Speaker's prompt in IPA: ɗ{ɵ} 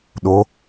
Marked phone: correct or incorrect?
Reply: incorrect